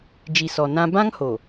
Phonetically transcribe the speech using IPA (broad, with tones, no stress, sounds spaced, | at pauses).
d͡ʒ i˨ s ɔ˨ n ã˦ b ã˦ ŋ h o˨